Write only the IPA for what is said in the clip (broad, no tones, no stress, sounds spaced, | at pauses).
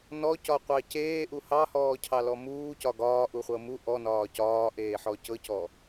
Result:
n ɔ c ɒ qʷ ɑ c eː ʔ u h ɑ h ɔː cʰ ɑ l ɔ m uː c ɒ ɡ ɒː ʔ u χʷ ɤ m u ʔ ɔ n ɒː c ɒː ʔ eː ħ ɔ c ɤ c ɔ